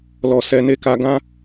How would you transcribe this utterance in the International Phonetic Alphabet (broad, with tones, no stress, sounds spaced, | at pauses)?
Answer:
l ɔ˨ s ɛ˧ n e˦ k a˦ ɡ ã˦